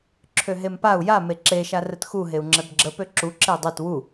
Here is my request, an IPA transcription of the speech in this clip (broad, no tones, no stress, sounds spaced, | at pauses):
ǁʰ ø ɦ e m p a u̯ j a m e ǁ e ʃ a r ə t x u ɦ e u̯ ŋ͡ǁ ɛ b ɡ͡ǁ ə p ø ǁ u ǁ e dˤ ø t w u